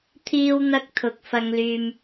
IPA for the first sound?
t̪ʰ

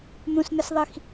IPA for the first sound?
n̪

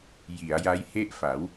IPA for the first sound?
j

